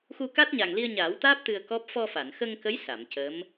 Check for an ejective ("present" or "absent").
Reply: absent